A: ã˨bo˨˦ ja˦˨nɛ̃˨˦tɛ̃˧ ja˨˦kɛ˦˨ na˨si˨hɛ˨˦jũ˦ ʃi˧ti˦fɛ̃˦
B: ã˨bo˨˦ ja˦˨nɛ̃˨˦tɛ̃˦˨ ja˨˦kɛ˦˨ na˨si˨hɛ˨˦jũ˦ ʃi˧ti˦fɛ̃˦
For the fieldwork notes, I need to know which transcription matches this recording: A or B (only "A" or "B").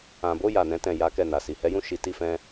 B